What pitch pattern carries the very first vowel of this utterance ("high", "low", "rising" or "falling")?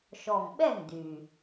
low